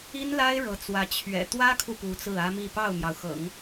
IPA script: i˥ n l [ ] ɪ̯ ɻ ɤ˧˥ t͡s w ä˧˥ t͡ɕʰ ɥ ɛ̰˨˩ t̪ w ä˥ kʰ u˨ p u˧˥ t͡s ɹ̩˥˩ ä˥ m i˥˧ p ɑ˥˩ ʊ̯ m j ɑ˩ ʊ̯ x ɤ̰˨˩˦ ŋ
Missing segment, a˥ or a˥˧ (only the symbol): a˥